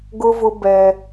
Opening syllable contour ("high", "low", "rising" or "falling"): high